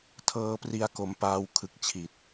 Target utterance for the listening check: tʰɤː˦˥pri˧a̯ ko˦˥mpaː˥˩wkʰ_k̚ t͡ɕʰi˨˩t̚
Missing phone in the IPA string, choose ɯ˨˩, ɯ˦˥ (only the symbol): ɯ˦˥